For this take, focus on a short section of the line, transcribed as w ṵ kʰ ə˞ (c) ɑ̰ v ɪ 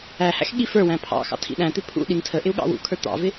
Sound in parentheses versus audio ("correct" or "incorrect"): incorrect